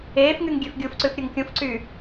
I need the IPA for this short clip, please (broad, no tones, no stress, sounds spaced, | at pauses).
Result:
eː f ŋ y ŋ ɡʲ ø f ɡʲ u f ǀ ʉ f ɾʲ ɵ ŋ kʲ ũ f ǀ yː